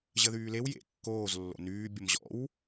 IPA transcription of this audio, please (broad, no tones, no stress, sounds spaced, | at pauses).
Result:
ʑ ə ð yː l e w j ḛ kː oː z lː o̰ n yː bʲ ə m ʑ ɔ̰ w